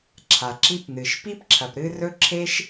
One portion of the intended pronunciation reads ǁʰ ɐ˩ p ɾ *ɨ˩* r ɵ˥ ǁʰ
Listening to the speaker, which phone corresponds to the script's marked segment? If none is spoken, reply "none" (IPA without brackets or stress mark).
ɨ˥